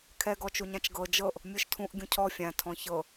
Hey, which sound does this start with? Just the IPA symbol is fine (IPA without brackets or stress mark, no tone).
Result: kʰ